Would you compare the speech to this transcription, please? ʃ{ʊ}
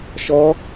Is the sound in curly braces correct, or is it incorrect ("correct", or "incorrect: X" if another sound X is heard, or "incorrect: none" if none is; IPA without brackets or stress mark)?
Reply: incorrect: ɔ